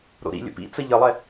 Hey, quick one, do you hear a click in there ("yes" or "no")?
no